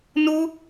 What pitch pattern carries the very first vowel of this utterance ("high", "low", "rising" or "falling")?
high